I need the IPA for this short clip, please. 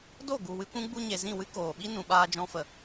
d o˦˨ ɡ u˨ w ɨ˧ kʷ ũ˦ ɡ͡b u˧ ɲ e˨ z ĩ˦˨ w ɨ˦ k oː˨ ɓ i˦ n ũ˨ ɓ aː˧ d͡ʒ ɔ̃˧ f ə˨

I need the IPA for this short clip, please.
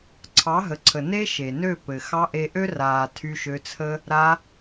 ǀʰ ɑ˨˦ ɦ ə˨ ǀʰ ə˨ n e˦ ʃ e˨ n ø˦˨ p ɘ˨ x ɑ˧ ʔ e˧ ʔ ø˦ r aː˨ tʰ y˧ ʃ ø˧ t͡sʰ ə˦ | ɾ a˧

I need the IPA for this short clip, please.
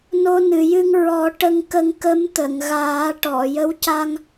n o˧ n ɨ˨˩˨ j ɨ˧ ŋ ɹ ɔ˨˩˦ ʈ ə˧ ŋ k ə˧ ŋ k ə˧˥ m t̪ ə˨˩˨ ŋ ɣ aː˨˩˦ ʈ ɔ˨˩˨ j ə˧˥ w c a˧ ŋ

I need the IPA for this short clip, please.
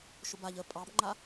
ʃ ʊ b a ʎ ə pʼ ɑ b ŋ͡ǃ a

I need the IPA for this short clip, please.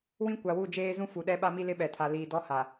w ĩ˦ kʷ a˨ w u˦˨ d͡ʒ eː˦ z ũ˦ f u˨ ɗ ɛ˦ ɓ a˦ m i˦ l ɪ˦ ɓ ɛ˨ tʰ a˨ l iː˨ d ɔ˦ h a˨

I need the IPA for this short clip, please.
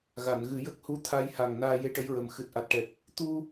ɣ a˨˩˨ n ɣ ɨ˨˩˦ j ə˦˥ k̚ h u˧˥ t̪ʰ a˧ j h a˨˩ ŋ n aː˧ j e˧ ʈ ə˧˥ j ɹ ə˨˩ m x ɨ˨˩ t̚ ʔ a˨˩ t̚ ʈ ɛ˨˩ k̚ | t̪ u˧

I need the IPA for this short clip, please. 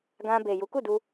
ɡ ã˧ b e˨ j u˨˦ k u˦˨ d u˧

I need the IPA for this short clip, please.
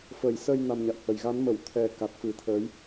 f ə˨˩ j s ə˧ j n a˧ m ɲ a̰˧˨ w h ə˨˩ j ɣ a˨˦ n m ə˧˩ w t̪ʰ ɛ˨˩ k a˨˩ t̚ f ɨ˨˩ t̪ʰ əː˨˦ j

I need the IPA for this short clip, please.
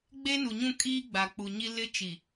ɡ͡b e˦ n u˨ ɲ ũ˦˨ kʼ iː˦ ɡ͡b a˨ k͡p u˨ ɲ i˦ l ɪ˦ t͡ʃ i˨

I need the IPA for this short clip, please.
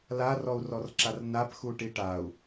l a r ɔ u̯ r ɔ r ǁ a r n a p x u ʈ i ʈ a u̯

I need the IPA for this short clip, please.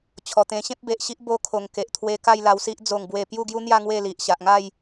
t͡ɕʰ ɔ˨˩ t̪ ẽ˧ ɕ ẽ˦ p̚ b e˨ ʔ ɕ i˦ ʔ b o˧ kʰ o˨˩ ŋ k e˨ ʔ t̪ʰ w e˧ k a˥˧ j l a˧ w s i˦ ʔ d͡z o˥˧ ŋ b w e˥˧ p j u˥˧ ɡ j u˦ n̪ j a˥˧ ŋ w e˥˧ l i˨ ʔ ɕ a˨ ʔ ŋ a˥˧ j

